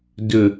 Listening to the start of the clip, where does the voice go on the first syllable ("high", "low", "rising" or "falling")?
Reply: low